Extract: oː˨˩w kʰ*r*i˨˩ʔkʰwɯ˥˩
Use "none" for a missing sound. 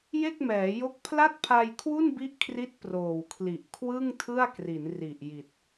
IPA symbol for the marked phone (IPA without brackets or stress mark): l